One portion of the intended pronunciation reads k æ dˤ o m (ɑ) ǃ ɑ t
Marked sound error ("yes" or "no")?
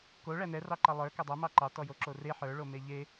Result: no